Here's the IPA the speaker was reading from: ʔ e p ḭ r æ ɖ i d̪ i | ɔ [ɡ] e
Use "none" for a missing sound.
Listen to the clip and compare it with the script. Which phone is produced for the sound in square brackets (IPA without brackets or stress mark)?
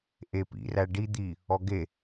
ɡ